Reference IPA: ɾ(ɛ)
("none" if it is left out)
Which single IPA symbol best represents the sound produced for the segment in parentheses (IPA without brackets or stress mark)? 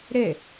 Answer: e